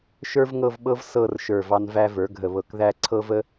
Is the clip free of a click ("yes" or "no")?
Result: no